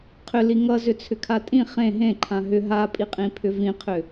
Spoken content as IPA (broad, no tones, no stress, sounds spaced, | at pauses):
qʰ ʏ l i ŋ ʌ z ʏ t͡sʰ ʏ kʰ a tʼ ĩ χ ẽ ɦ ẽ ǃʰ ã ɦ ʏ ɦ a pʼ i qʼ ĩ pʰ ʏ v ĩ qʰ ʏ